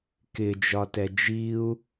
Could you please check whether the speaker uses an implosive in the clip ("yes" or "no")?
no